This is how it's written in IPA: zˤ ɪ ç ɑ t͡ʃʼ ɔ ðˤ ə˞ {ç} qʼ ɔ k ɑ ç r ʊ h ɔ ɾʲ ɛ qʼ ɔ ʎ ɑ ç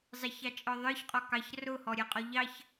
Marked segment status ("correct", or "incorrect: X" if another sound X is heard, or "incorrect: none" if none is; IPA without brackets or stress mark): correct